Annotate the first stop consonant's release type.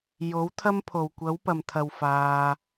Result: aspirated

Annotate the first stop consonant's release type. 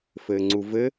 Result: click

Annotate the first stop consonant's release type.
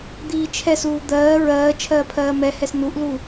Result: plain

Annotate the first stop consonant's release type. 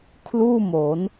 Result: aspirated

